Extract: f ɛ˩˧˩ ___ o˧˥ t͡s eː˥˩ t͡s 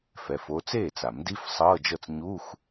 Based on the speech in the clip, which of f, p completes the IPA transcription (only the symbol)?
f